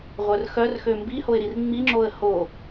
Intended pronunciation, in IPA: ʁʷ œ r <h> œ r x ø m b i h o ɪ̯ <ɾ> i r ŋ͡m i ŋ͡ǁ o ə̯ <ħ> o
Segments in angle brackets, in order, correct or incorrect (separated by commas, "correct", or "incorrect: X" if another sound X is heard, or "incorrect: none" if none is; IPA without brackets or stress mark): incorrect: x, correct, incorrect: h